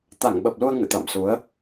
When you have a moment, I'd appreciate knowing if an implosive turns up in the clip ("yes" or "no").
yes